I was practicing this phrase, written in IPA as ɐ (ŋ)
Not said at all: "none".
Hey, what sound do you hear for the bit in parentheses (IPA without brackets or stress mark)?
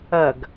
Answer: ɡ